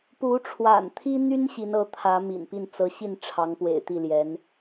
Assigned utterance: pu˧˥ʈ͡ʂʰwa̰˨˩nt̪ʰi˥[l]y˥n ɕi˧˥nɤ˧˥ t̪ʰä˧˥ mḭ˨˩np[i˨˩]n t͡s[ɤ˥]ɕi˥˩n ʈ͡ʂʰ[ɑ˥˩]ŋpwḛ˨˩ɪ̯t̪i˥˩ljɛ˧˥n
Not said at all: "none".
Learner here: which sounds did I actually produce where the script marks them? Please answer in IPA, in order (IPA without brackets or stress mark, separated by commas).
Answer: n̪, i˥˩, ɤ˧˥, ɑ˧˥